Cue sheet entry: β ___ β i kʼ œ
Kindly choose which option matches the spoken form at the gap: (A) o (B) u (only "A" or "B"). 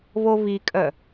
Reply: A